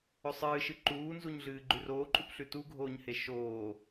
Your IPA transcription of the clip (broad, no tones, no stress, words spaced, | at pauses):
ɵsˤɨːʃɨ ǃuːnzuɲɮɨː ɡ͡ǃʉroːǃʼupɬʉ tuɡʱoːɲhe ʃoː